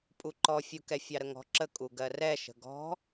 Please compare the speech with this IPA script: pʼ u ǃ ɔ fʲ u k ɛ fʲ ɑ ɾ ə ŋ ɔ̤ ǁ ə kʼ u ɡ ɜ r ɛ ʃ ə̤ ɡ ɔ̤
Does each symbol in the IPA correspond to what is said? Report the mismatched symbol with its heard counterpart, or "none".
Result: none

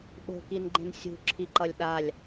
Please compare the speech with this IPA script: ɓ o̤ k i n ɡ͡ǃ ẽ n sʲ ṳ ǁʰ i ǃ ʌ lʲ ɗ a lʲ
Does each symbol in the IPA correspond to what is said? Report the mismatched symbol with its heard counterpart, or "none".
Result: none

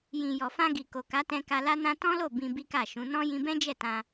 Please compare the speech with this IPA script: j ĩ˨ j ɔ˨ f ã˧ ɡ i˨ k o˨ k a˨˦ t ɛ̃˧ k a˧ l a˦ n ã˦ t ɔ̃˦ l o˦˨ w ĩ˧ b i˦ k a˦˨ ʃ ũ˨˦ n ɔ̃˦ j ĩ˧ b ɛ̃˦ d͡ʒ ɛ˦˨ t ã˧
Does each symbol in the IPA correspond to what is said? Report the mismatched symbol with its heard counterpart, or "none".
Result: w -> b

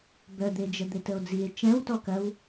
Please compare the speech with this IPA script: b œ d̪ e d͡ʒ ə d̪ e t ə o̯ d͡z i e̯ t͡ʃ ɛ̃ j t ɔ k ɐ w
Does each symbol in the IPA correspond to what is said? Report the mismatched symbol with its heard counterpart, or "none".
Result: j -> w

